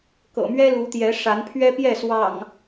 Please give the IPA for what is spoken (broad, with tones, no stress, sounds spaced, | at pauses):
k ɤ̰˨˩ m ɥ ɛ˦ l u˨˦ t̪ j ɛ˨˦ ʂ a˨˦ n pʰ ɥ ɛ˦ p j ɛ˥˨ s w ɑ̰˨˩ ŋ